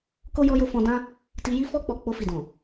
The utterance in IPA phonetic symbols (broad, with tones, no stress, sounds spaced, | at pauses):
k o˦ j ɔ˧ j o˧ f ɔ̃˧ d ã˦ | t i˧ j i˦ f ɔ˦ k͡p ɔ˧ k͡p o˧ f i˨ d ɔ̃˨